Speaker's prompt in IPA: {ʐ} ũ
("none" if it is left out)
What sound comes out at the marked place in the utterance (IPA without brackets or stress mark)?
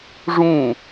ʐ